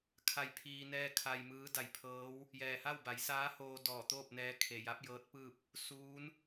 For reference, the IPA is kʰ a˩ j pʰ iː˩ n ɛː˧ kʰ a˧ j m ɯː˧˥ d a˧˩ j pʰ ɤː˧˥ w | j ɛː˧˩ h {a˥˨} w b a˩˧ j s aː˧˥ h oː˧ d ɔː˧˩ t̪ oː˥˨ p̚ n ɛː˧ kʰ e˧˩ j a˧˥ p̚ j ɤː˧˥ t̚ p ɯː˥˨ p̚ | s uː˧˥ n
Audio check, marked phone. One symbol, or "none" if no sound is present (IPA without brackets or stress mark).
a˥˨